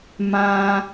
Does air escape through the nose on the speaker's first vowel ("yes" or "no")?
yes